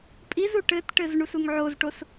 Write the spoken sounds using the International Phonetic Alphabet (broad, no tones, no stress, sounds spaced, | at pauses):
pʼ i z u ʈ ɘ t ʈ ɘ z ɳ u s u ŋ ʕ o z ʈ o s